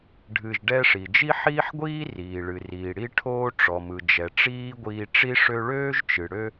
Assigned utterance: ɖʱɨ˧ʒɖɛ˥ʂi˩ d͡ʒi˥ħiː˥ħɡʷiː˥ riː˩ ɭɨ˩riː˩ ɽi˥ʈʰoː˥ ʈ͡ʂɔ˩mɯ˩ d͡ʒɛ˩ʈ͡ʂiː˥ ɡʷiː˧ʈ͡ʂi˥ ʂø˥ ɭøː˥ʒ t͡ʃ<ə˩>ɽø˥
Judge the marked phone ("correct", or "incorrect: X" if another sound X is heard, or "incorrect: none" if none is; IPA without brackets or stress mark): incorrect: ɨ˩